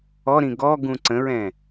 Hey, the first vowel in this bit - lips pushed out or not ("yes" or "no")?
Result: yes